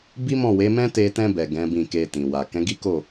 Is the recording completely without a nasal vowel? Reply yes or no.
no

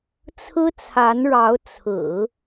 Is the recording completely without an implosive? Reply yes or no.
yes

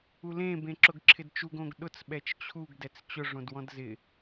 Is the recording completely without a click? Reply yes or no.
no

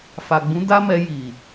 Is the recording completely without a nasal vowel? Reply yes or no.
no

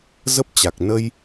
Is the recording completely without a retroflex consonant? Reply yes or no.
yes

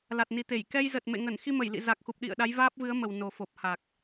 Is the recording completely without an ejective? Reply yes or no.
yes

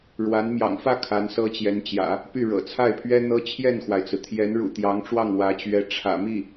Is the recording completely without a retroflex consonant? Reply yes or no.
no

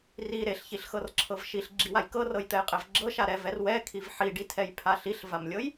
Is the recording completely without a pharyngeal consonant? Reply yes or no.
no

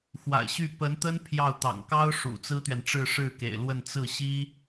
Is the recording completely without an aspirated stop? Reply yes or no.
no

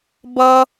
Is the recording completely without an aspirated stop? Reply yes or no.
yes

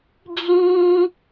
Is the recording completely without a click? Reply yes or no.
yes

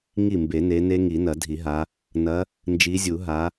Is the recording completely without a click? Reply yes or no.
yes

